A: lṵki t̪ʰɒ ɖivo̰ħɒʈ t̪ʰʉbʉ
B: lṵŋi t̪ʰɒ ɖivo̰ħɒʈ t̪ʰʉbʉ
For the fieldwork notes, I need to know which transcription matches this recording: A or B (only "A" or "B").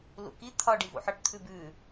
A